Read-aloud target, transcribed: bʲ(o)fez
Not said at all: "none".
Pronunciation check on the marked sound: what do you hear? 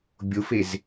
o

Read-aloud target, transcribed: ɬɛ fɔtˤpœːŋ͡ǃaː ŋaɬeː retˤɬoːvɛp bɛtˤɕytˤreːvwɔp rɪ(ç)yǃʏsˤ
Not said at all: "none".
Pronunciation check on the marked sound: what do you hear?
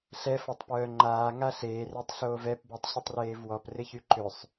ç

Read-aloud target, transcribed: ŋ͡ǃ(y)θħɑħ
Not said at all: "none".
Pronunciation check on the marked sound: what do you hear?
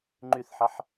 y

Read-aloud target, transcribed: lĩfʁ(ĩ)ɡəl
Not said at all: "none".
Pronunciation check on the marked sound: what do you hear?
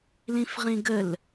ĩ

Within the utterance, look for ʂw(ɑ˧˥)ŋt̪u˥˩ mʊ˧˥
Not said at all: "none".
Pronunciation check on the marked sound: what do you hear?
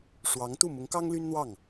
ɑ˧˥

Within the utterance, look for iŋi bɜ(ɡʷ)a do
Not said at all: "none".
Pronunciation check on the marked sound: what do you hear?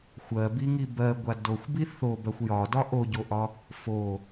ɡʷ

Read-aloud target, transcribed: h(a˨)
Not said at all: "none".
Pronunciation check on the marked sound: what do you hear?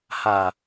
a˨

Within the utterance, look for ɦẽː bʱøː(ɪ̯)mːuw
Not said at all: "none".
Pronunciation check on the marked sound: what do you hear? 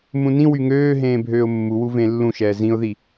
ʊ̯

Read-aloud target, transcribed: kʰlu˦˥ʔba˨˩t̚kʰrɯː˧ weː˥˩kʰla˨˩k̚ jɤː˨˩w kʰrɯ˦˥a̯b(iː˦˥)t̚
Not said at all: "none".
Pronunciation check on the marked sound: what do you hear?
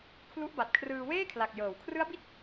i˦˥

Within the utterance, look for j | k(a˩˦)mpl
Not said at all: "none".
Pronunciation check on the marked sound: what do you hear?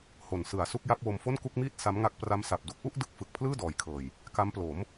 a˦˥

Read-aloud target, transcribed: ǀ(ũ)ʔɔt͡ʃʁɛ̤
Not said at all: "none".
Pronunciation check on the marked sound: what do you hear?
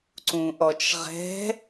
ũ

